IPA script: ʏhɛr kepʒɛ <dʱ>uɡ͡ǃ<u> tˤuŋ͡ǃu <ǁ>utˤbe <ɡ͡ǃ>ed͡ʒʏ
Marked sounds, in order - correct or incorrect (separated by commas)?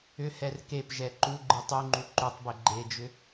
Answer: incorrect, incorrect, incorrect, correct